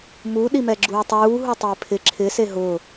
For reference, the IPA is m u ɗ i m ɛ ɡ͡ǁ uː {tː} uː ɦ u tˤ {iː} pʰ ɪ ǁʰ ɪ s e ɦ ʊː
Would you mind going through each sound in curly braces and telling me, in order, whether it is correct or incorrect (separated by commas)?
incorrect, incorrect